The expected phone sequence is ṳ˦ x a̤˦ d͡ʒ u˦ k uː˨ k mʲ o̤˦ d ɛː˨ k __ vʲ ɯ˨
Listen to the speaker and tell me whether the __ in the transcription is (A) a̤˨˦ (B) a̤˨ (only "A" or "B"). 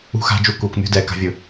A